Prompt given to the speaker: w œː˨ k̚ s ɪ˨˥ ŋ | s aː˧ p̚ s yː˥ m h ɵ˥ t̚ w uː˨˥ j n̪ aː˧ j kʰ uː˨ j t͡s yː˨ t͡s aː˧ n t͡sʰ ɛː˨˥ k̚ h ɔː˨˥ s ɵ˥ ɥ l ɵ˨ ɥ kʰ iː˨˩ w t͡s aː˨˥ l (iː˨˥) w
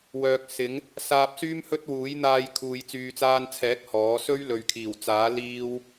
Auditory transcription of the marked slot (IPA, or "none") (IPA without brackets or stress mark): iː˥